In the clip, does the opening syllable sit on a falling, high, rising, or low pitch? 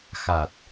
low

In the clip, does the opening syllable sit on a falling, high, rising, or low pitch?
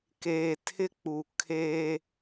low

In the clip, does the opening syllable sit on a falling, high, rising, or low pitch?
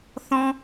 high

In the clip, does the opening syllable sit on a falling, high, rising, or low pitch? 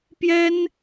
high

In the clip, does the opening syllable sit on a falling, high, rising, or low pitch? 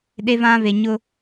high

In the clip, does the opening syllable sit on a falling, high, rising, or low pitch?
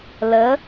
rising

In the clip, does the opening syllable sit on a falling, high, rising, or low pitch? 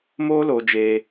high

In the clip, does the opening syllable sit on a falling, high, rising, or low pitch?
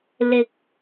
low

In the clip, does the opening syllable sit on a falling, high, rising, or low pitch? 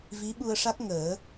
rising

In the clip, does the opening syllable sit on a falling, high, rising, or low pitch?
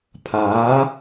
rising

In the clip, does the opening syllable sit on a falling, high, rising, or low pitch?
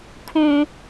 high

